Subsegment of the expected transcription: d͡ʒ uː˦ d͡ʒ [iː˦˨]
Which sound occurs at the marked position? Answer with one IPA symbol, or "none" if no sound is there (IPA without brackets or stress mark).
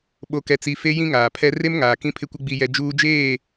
eː˦˨